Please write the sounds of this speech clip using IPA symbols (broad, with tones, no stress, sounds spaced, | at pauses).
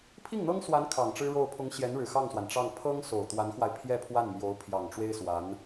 pʰ i˥˩ ŋ n̪ ɤ˥ ŋ s w a˧˥ n kʰ ɑ˨˩ ŋ ʈ͡ʂ ɻ̩˥ ɻ o˥˩ ʊ̯ pʰ ʊ˧˥ ŋ ɕ j ɛ˧˥ n ɻ ɻ̩˨˩ x ɑ˥˩ ŋ s w a˩ n ʈ͡ʂ ɑ˥˩ ŋ pʰ ɤ˥ ŋ s o˨˩ ʊ̯ t̪ w a˧˥ n x w a˧ ɪ̯ pʰ j ɛ˥˧ pʰ w a˥˩ n m j o˧˥ ʊ̯ pʰ j ɑ˨˩ ŋ ʈ͡ʂ w e˥ ɪ̯ s w a˧˥ n